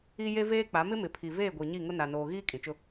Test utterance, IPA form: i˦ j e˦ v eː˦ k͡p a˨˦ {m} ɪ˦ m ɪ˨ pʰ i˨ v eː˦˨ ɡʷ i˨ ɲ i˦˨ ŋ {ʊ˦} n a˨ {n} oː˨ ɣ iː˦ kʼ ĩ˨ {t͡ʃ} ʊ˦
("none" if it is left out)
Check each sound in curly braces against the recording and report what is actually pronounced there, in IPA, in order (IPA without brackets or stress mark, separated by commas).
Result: m, ʊ˦, n, t͡ʃ